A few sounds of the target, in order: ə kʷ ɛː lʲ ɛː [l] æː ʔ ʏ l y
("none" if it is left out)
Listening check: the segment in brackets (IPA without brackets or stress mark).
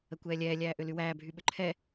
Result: lʲ